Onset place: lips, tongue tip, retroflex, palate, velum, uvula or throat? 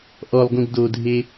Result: throat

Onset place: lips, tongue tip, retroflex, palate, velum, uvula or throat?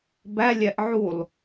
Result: lips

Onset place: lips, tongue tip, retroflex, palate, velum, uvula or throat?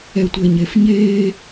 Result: tongue tip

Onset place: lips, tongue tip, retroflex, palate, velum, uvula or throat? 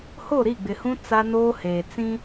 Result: throat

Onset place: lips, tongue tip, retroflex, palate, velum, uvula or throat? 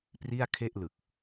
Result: lips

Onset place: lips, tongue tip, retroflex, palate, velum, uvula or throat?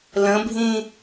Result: tongue tip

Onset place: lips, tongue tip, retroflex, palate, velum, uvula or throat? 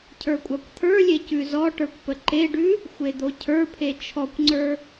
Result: palate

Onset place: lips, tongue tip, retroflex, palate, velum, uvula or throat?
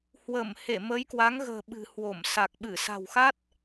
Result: throat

